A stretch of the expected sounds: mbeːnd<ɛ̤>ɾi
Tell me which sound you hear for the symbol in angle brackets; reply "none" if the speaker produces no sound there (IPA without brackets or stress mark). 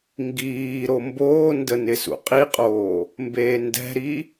ɛ̤